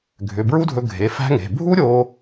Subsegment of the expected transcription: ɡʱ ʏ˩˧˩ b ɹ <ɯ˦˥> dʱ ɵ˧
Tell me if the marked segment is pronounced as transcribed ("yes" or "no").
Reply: no